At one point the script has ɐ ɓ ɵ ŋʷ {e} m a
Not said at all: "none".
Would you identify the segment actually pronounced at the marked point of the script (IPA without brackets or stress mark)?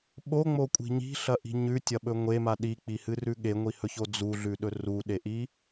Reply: e